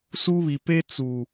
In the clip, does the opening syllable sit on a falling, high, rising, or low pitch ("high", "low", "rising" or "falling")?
high